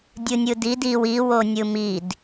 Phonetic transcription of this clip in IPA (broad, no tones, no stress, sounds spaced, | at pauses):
dʲ ɯ nʲ ɯ d i d i w i w o nʲ ɯ m i d